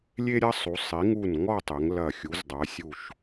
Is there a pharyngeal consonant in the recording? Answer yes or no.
no